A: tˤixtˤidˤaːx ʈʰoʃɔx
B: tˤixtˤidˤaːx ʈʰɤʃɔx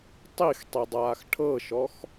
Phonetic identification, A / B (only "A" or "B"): B